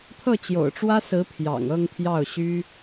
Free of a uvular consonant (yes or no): yes